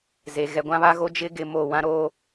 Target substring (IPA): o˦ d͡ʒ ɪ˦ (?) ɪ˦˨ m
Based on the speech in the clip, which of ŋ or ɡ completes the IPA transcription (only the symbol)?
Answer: ɡ